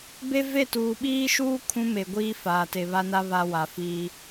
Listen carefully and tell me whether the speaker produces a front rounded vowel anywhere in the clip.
no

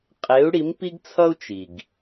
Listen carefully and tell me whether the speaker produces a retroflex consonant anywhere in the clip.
yes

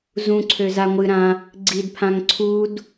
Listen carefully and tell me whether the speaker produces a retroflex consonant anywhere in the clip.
no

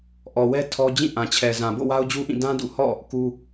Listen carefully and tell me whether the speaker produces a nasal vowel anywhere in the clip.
yes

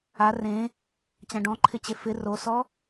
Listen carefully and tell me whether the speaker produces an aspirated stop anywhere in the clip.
yes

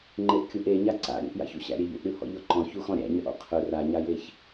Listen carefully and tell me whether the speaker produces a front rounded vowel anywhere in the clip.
yes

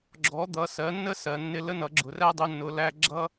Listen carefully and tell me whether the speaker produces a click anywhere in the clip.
yes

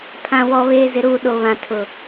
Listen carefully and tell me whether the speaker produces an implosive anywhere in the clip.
yes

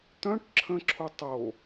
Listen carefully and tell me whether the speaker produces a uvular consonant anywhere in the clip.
no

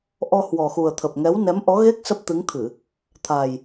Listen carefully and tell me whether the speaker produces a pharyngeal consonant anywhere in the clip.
no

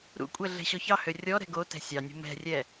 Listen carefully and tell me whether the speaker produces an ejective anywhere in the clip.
yes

